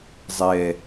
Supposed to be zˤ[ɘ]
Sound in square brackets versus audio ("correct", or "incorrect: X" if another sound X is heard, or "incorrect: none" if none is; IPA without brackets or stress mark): incorrect: ɛ